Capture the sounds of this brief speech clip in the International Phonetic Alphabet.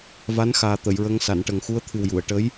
va˧˥nxaː˨˩ t̪ə˨˩˨jɹə˧˥ŋ sa˨˩˨nʈə˨˩ŋ xu˧˥ə̯t̪ʰɨ˨˩wju˨˩˨ə̯ ʈə˧˥j

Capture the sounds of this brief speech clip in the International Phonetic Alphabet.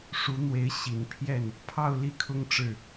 ʂu˧˥n̪we˧˥ɪ̯ ɕi˨˩npʰjɛ˥˩n | pʰɑ˥˧ʊ̯ li˥˩kʰʊ˥ŋʈ͡ʂɻ̩˥˩

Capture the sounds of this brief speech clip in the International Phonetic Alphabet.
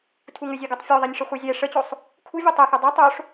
tʰuŋʏzʲeɡɔtˤ fʲoðˤenʲʂə χʷɛzʲɛ ʂət͡ɕosˤ | kʰuvʲe tˤɛxu dˤu tˤoʂ

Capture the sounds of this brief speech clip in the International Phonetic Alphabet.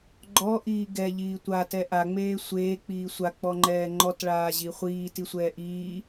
ɡ͡ǃɔʔiː ɡɛʎiː tʷatɛ ʔaŋ͡meː sʷeːk͡piː sʷak͡pɔŋ͡ǃɛː ŋ͡ǃɔtɭaːʑi χʷiːtisʷɛː ʔiː

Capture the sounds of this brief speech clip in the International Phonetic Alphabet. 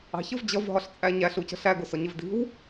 ɑ̤çəv d͡ʑʌv ɦɒɬt͡sʼæɲæɬ ucə̤ɬæ ɡʊsɒɲɪvdi̤w

